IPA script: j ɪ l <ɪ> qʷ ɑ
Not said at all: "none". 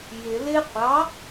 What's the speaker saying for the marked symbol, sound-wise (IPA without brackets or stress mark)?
ɪ